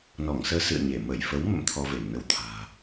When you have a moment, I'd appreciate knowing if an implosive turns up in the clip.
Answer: no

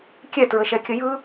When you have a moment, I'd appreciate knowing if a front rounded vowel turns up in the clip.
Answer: no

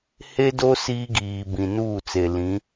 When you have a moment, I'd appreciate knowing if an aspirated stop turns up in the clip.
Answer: no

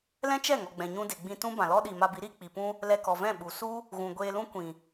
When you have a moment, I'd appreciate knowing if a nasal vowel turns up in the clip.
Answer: yes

